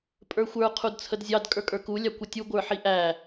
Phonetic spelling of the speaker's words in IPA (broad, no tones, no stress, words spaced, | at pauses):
pʼə˞xʷə˞ qʰudt͡sʰədzʲɑd kʼə˞kʼə˞ku lʲɑkʷətʲu ɡʷə˞ħiʔæ